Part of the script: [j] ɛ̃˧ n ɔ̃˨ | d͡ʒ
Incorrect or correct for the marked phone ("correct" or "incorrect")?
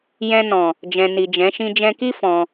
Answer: correct